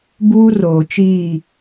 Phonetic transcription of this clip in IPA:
b uː˦ r oː˨ t͡ʃ iː˦˨

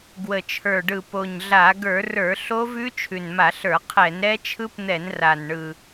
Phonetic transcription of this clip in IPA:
ɡ w ə˨˩ t͡ʃʰ ə˞˨˩ ɖ ɯ˨˩ p o˨˩ ɲ ɮ a˧˩˧ ɡ ə˞˧˩˧ r ə˞˧˩˧ ɬ o˦˥ v ʉ˦˥ t͡ʃʰ ʉ˨˩ n m a˧˩˧ ɬ ə˞˧˩˧ qʰ ɛ˧˩˧ n ɾ ɛ˦˥ t͡ʃʰ ɯ˦˥ p n̪ ɛ˧˩˧ n r a˨˩ n ɳ ɯ˨˩

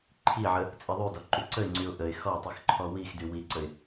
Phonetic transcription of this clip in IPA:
ǃʰ i ʕ ə | t͡sʼ i ðˤ y d ɔ ǃ y ǀ ə ɪ̯ ŋ͡ǀ y ʊ̯ ʔ ə ɪ̯ x ɔ tˤ i x ǃʰ ɔ w i x d y w i ǀ ə ɪ̯

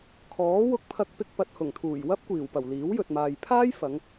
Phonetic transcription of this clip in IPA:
kʰ ɔː˨˥ w ʊ˧ k̚ pʰ ɐ˧ k̚ p ɪ˧ k̚ p ɐ˨ t̚ h ʊ˨˩ ŋ t̪ʰ uː˨˩ j w ɐ˥ p̚ kʷ iː˨˩ w p ɐ˨˩ w l iː˨˥ w j ɵ˨ t̚ m aː˨ j pʰ aː˥ j f ɐ˨˧ ŋ

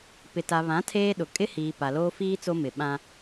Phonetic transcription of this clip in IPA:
p ɪ˨ t a˨ β ã˨˦ tʰ eː˦ ɗ ʊ˨ kʼ ɪ˦ h iː˨ p a˨ l oː˦ f iː˦ t͡s o˦ m ɪ˨ ɓ ã˦

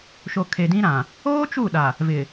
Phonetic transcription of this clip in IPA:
ʃ o˨ kʰ e˨ d ĩ˦ ɾ ã˨ | oː˦ t͡ʃ u˦˨ ɗ a˨ | v ɪ˨

